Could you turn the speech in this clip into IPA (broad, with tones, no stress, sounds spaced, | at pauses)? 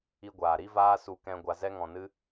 i˧ ɡʷ aː˨ ɾ i˦ v aː˦ s u˦ k ɛ̃˦ ɡʷ a˧ z ɛ˦ ŋ ɔ̃˧ n ɨ˦